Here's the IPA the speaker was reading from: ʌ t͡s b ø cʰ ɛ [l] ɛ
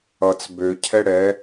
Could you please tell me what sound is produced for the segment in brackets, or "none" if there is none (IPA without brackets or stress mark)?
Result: ɽ